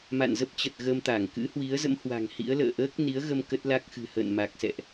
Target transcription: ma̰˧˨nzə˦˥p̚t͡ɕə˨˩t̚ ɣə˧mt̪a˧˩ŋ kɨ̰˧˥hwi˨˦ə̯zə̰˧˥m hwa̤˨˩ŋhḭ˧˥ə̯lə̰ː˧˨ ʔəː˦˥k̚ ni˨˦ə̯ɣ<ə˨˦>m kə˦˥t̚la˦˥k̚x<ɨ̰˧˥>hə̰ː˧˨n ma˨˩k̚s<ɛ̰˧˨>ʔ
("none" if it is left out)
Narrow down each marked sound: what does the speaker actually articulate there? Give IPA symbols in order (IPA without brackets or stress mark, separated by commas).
ə˧, ɨ̤˨˩, ɛ̰˧˨